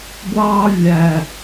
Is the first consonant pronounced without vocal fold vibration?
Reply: no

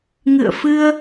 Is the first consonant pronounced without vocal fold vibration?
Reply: no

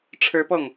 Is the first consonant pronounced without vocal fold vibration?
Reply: yes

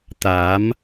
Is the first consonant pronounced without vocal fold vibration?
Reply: yes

